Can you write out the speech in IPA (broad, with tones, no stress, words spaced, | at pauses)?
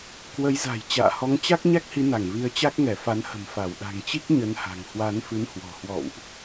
kwə˨˦jza̤˨˩j t͡ɕa̰ː˧˨hɔ˨˦ŋt͡ɕa˦˥k̚ ɲa˦˥k̚hi˨˦na˧˩ŋ vi˨˦ə̯t͡ɕa˦˥k̚ŋɛ˧˩fa˨˦n hə̤˨˩mfa˧˩wɗa̤˨˩ŋt͡ɕi˦˥k̚ ɲə˨˦nha̤˨˩ŋ hwa˨˦nfɨ˨˦nhwɔ̤˨˩ hwɔ̰˧˨wʔ